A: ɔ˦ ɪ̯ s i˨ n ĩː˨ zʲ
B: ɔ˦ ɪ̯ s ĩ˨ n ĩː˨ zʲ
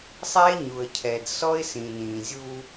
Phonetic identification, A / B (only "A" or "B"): B